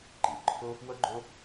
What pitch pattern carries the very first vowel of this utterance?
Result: low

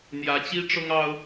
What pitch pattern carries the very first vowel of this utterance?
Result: rising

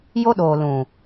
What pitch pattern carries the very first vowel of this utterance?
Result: high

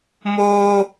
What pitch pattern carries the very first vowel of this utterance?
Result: high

